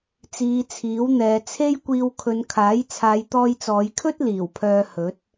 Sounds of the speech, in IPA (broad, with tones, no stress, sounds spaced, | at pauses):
t͡s iː˨˧ t͡sʰ iː˨˥ w n̪ ɛː˨˧ t͡sʰ e˥ j kʷ iː˧ w kʰ ɵ˨˧ n kʰ aː˨˥ j t͡sʰ aː˨˧ j t̪ ɔː˧ j t͡s ɔː˨˧ j kʰ ɵ˥ t̚ l iː˨˩ w pʰ œː˧ h ɵ˨˥ t̚